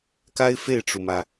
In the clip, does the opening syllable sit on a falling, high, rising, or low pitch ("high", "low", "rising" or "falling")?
high